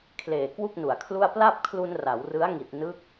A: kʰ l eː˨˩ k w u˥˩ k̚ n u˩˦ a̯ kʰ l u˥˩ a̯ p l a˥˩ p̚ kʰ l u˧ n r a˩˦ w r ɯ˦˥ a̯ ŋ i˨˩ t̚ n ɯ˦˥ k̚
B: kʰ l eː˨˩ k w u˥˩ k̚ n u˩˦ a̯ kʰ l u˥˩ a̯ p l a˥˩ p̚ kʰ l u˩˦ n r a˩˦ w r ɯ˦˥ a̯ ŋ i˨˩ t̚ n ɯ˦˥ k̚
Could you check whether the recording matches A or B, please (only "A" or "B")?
A